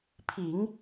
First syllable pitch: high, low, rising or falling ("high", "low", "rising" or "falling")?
low